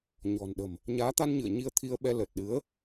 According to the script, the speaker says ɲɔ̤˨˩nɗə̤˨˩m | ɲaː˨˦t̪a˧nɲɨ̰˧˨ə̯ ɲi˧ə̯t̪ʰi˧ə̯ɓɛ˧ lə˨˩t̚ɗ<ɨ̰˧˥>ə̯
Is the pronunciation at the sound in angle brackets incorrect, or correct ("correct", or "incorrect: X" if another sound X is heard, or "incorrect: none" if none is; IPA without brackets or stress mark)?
incorrect: ɨ˨˦